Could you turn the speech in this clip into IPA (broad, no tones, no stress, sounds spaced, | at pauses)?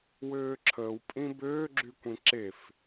w øː ǁʰ əː w pʼ ĩ b øː ɡ͡ǁ y kʷ ĩ ǁ e f